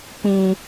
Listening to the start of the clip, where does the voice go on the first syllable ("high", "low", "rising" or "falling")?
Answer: low